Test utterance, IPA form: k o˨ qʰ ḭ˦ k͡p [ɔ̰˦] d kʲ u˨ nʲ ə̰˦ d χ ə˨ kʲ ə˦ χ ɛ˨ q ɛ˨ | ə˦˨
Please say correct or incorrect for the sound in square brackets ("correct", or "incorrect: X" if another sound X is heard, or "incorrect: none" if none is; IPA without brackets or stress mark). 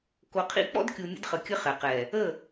correct